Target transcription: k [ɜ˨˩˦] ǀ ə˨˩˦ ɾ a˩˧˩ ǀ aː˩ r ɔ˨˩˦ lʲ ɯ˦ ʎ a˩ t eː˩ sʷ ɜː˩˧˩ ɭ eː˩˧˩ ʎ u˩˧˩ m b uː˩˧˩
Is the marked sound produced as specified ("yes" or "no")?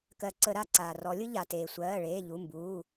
yes